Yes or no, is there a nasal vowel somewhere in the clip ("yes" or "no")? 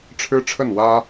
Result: no